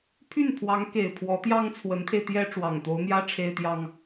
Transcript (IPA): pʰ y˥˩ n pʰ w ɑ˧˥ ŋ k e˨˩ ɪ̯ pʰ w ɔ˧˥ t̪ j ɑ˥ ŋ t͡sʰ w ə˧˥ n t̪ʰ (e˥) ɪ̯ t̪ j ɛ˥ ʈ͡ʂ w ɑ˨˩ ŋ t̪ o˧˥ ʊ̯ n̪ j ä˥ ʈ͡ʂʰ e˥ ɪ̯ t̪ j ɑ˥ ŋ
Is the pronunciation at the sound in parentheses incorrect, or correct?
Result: incorrect